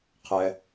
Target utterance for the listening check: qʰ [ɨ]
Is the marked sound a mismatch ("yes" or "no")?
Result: yes